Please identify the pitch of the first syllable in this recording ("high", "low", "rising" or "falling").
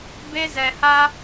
high